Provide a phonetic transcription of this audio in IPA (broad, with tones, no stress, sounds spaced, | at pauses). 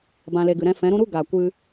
b ã˧ l e˧ ɡ ɨ˨ ɾ ɛ̃˧ f ɛ̃˨˦ ɾ ũ˦ ɾ u˦ ɡ aː˨ kʷ ɨ˧